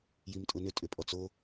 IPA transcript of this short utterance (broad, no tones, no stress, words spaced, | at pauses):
jimtʼʊnʏ tʼʏpʼɔt͡so